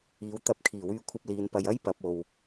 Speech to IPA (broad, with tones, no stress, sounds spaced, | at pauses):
iː˨˥ w t̪ ɐ˧ p̚ kʰ iː˨˩ w yː˧ kʷʰ ɐ˧ p̚ l iː˨˧ n p ɐ˧ j ɐ˥ j p ɐ˨˥ p̚ o˧ w